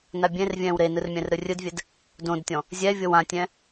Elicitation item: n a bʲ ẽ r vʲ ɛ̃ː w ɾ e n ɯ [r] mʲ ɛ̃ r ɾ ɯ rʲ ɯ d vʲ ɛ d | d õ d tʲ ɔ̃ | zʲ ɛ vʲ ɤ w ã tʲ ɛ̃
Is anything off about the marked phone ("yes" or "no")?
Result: no